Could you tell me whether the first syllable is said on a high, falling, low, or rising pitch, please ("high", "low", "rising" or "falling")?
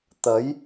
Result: rising